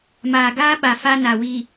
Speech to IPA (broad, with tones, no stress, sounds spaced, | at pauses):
m aː˨ ɡ aː˦ ɓ a˨ f a˦ n a˨ w i˨